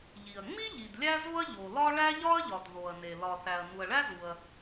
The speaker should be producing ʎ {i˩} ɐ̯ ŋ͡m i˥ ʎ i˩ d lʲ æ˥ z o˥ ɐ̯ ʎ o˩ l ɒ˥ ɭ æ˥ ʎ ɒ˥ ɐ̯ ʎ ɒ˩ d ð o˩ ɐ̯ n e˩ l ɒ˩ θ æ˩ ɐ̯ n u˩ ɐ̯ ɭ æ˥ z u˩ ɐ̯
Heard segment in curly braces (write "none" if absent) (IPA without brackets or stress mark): i˩